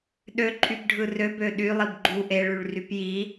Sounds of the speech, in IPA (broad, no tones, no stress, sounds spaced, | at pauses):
ɗ ø ǃʼ y b ɖʱ ɯ r ø b ø ɗ y lˠ i b ɡ͡ǃ u ʔ e ɭ y ɭ r y p j i